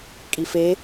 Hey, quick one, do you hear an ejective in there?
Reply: yes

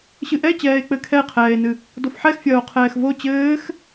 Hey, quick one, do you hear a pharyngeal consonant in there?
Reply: yes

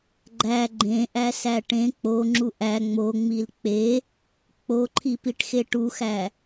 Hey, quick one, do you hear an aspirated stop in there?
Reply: yes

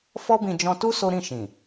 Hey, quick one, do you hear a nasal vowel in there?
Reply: yes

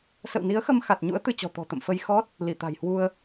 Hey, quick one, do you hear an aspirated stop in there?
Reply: no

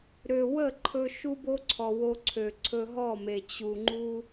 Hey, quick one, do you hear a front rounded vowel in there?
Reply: yes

